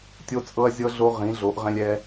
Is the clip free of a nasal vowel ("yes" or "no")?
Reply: no